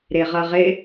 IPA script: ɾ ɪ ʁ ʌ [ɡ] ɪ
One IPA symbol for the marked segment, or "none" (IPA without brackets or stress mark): ʁ